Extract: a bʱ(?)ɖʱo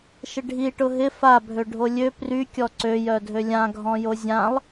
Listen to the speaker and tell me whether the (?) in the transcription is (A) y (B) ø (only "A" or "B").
B